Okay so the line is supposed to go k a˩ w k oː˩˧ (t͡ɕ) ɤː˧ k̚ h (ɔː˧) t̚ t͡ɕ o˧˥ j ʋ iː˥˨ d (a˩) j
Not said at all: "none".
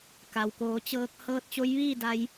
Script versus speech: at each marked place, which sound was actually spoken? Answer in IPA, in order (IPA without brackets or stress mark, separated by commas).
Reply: t͡ɕ, ɤː˧, a˧